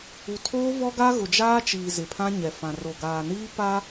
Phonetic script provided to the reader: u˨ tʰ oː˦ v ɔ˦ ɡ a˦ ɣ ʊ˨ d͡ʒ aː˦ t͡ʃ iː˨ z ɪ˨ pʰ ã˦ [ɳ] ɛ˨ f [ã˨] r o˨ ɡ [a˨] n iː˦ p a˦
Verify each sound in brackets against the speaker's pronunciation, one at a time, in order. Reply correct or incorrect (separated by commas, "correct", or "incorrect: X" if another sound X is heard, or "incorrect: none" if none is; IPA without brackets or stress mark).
incorrect: ɲ, correct, incorrect: aː˨